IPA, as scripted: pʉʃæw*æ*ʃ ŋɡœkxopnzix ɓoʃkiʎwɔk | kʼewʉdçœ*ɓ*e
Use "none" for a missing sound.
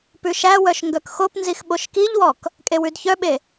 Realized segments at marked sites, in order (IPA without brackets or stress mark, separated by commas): œ, ɓ